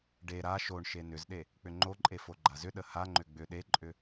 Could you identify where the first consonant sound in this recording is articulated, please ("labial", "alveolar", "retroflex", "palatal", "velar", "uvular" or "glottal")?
retroflex